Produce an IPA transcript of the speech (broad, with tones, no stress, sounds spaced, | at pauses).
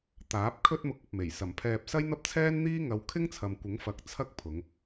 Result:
t̪ aː˨˥ p̚ kʰ ɵ˧ t̚ m ʊ˨ k̚ ɐ˨ p̚ m e˨˩ j s ɐ˨˩ m pʰ ɛː˨ p̚ s ɐ˥ j n̪ ɐ˥ p̚ t͡sʰ ɛː˥ n n̪ iː˥ ŋ ɐ˧ w kʰ ɪ˥ ŋ t͡sʰ ɐ˨ m kʷ ɪ˨˥ ŋ f ɐ˨˥ k̚ t͡sʰ ɐ˥ k̚ pʰ ʊ˨˧ ŋ